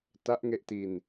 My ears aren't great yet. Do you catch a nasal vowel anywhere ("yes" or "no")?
no